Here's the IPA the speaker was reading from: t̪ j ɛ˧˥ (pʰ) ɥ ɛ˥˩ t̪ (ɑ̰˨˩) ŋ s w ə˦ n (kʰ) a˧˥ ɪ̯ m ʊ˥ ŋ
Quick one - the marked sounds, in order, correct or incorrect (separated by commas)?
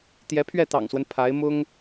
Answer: correct, correct, incorrect